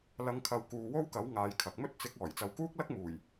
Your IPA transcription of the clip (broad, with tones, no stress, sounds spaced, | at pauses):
l ɐ˨ ŋ kʰ ɐ˨ w k uː˨˧ w o˥ w k ɐ˨˥ w ŋ aː˨˧ j kʰ ɐ˨ k̚ m ɵ˥ t̚ t͡s ɪ˨˥ k̚ ɔː˨˩ j t͡s ɐ˨˧ w k uː˥ k̚ l ɐ˥ k̚ m uː˨˩ j